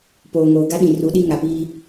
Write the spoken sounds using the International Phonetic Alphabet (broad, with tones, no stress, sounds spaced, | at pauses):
p oː˨ ŋ oː˨ ɡ a˦ ɗ ĩ˨ r u˨˦ ɗ i˦ ŋ a˨ p iː˦